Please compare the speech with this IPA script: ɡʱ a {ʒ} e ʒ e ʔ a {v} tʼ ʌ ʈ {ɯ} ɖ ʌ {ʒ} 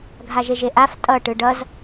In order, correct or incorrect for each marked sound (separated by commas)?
correct, incorrect, correct, incorrect